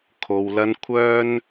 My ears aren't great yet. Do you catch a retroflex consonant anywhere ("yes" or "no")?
no